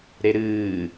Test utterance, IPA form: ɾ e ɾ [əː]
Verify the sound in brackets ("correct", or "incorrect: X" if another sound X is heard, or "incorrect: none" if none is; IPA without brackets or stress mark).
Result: incorrect: ɨː